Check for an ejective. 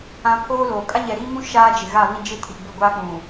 present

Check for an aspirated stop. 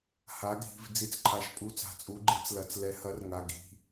present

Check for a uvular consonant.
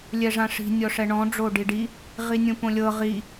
present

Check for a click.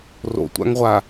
absent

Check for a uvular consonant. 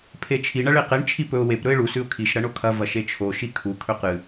present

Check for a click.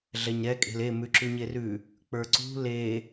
present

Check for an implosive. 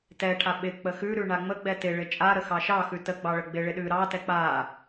present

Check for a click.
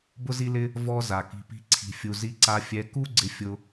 present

